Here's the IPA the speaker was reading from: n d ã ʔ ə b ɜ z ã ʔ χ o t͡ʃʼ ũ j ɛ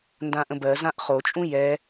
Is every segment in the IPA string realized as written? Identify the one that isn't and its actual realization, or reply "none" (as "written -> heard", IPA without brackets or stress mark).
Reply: ə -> ə̃